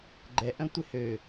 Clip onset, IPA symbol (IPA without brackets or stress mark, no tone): ɡ͡ǃ